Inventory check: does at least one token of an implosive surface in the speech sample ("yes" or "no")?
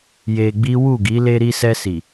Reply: no